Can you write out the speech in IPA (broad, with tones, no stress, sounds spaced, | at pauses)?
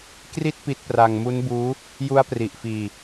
k r i˥˩ t̚ p i˦˥ t̚ p r a˧ ŋ m u˦˥ n b uː˦˥ | j u˦˥ a̯ p r i˨˩ ʔ f iː˧